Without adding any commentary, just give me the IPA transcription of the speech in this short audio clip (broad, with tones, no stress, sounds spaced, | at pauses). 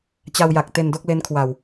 t͡ɕ a˧ w j a˨˩ k̚ t e˧ n d o˥˩ k̚ l e˦˥ n kʰ w a˨˩ w